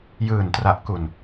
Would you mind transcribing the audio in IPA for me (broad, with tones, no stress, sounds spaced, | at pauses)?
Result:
j ɯː˨˩ n t r a˨˩ ʔ k u˨˩ n